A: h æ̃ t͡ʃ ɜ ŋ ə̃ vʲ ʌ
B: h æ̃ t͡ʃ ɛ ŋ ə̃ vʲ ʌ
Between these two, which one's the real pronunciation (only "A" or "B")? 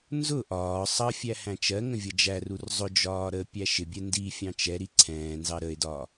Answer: A